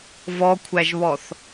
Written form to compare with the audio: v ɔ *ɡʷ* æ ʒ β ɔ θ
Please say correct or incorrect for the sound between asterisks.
incorrect